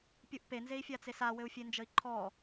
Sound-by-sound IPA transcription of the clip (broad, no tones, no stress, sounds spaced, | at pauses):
pʲ u ʔ p e n z e i̯ fʲ a t͡s e s a w ɘ u̯ fʲ e n d͡ʒ ə i̯ ǃʰ ɔ